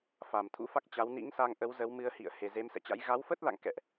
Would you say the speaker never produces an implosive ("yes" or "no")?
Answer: yes